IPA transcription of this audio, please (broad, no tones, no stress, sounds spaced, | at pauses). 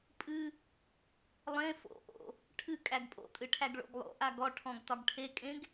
pʼ ɨ | lˠ ẽ f o̰ ʔ o̰ | ʈʰ ɨ kʼ æ ɡ pʼ o̰ tʼ ɨ ʈʰ æ ɡ ɭ o̰ ɡ lˠ o̰ ʔ a ɡ ɔ ʈʰ ɔ̃ ɡ t ɒ ɡ ʈʰ e kʼ ẽ ɡ